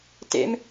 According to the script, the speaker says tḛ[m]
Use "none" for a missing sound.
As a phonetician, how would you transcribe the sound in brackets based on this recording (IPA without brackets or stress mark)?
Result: m